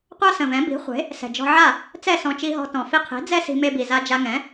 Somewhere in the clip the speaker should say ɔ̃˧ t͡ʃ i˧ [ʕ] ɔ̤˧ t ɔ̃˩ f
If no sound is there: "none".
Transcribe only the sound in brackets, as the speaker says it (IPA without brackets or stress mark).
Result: ɦ